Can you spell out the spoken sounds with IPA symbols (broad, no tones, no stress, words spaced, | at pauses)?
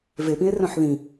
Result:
vepĩe̯ rœ̃ħðĩ